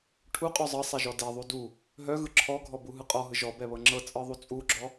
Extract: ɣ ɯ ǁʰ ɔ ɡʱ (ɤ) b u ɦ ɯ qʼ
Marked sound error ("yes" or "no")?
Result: yes